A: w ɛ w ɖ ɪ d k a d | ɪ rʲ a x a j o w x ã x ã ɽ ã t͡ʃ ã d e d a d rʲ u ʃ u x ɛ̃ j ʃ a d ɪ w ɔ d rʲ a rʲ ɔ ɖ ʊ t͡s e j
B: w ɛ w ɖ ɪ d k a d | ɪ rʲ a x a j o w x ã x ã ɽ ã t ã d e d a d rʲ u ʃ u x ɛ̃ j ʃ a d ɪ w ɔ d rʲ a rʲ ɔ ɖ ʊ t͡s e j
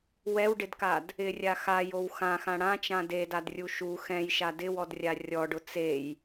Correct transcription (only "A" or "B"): A